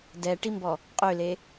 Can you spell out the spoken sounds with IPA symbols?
d ɛ ʈ i m b ɔ | qʼ ø l e

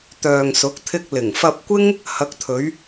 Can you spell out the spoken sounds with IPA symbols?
t̪ œː˨ ŋ s ʊ˨˥ k̚ t̪ʰ ɪ˧ k̚ l ɪ˨˩ ŋ f ɐ˧ p̚ kʷ ɪ˥ ŋ | h ɐ˨˥ k̚ t̪ʰ ɵ˨˧ ɥ

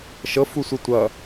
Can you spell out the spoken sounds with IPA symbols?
ʃ ɤ f u sʷ ə tʷ ʌ

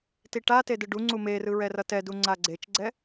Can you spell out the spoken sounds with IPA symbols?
t i ʈ a t e d ɯ ɖ u ŋ͡ǀ u m e r ɯ ɹ ɛ r ʌ t ɛ d u ŋ͡ǀ a ɡ͡ǀ e t͡ʃ ɡ͡ǀ ɛ

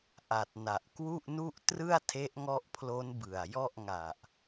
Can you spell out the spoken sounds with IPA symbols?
ʔ a˨˩ t̚ n a˨˩ ʔ k w u˥˩ ʔ n u˥˩ ʔ t r ɯ˥˩ a̯ tʰ e˦˥ ʔ ŋ ɔ˦˥ ʔ pʰ l o˦˥ n b ɯ˨˩ a̯ j ɔ˥˩ ʔ ŋ a˨˩ ʔ

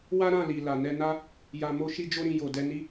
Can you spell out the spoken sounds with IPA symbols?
w a˦ ɾ ã˦˨ l i˨ l a˨ n ɛ˧ n a˦ | j a˧ m o˦ ʃ i˦ d͡ʒ o˦ ɾ ĩ˧ j o˨ d ɛ˧ n i˦

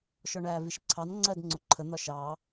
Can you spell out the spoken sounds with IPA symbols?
ʃ ɔ ɳ æː v i ʃ ǀʰ ɑ n ŋ͡ǀ ɜː d ŋ͡ǀ ʊ ǃʰ ə n̪ ɒ ʃ ɑː

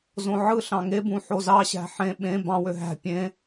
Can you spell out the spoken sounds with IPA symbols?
z õ ʕ ɯ ɬ ɑ̃ ŋ e b ũ ħ o z ɑ ɕ æ̤ ħ ẽ ɓ ẽ b ɑ̃ w ø ɦ æ̤ pʲ ẽ

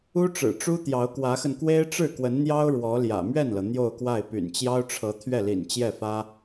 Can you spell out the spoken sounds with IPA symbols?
u˥ ʈ͡ʂ ɻ̩˨˩ ʈ͡ʂ u˥ t̪ j ɑ˧˥ ʊ̯ k w ä˧˥ x ə˧ n k w e˥ ɪ̯ ʈ͡ʂ ɻ̩˥˩ k w ə˧˥ n n̪ j ɑ˥ ʊ̯ ɻ w ɔ˧˥ l j ä̰˨˩ m ɥ ɛ˥˩ n l ɤ˩ n̪ j o˥˧ ʊ̯ k w a˥˩ ɪ̯ p y̰˨˩ n t͡ɕ j ɑ˥ ʊ̯ ʈ͡ʂʰ ɤ˧˥ t̪ʰ ɥ ɛ˥˩ l ḭ˨˩ n t͡ɕ j ɛ˥˩ f ä˥

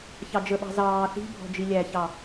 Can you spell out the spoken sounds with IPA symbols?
ç ɑ d͡ʒ ə ɓ ɑ̤ z ɑː θ i̤ bʱ ɔ̤ d͡ʒ i lʲ æ ç ɑ

